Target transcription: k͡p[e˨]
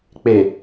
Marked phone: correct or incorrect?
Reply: correct